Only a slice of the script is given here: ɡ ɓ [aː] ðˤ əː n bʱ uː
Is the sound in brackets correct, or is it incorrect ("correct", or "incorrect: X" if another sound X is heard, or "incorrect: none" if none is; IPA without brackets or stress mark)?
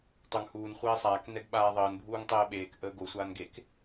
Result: correct